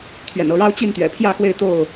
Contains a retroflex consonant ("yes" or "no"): yes